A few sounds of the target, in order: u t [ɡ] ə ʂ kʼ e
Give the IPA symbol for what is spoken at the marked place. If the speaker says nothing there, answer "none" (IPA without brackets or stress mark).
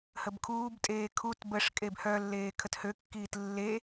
b